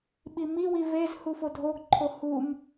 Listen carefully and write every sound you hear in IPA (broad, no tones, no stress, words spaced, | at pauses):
ɓimiwi vez hufodʱoɡǃʰo hum